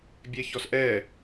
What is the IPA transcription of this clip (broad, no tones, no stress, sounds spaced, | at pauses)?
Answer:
bʲ ɛ ç ɔ s ʔ ɛ